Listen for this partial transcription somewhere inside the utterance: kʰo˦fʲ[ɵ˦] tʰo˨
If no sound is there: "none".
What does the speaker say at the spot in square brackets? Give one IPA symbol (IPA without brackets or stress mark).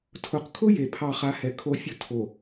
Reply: ʊ˦